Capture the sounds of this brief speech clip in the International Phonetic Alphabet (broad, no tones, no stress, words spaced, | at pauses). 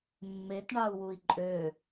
mːetɳɑu̯wui̯ ǃʼø